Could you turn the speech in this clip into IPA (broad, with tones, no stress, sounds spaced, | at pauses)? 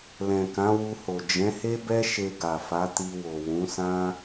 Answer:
l ɛ̃˨ k ã˨˦ w u˧ h o˨ d͡ʒ ɛ̃˨˦ h e˦ b ɛ˦ ʃ e˧ ɡ a˨ f a˨˦ t i˧ w o˨ w ũ˨˦ s ã˦